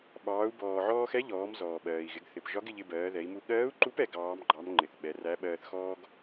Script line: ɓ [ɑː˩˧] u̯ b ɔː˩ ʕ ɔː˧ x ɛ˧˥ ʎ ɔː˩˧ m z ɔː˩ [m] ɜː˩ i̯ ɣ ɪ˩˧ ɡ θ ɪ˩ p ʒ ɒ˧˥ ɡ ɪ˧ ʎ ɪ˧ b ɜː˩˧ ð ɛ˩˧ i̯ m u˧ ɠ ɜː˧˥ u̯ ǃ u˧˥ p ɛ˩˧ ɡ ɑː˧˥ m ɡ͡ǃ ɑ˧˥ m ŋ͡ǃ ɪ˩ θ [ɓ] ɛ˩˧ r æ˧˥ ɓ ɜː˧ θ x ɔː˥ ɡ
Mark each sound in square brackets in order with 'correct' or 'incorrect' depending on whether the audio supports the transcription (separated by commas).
correct, incorrect, correct